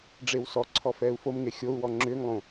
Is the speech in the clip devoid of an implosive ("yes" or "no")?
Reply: yes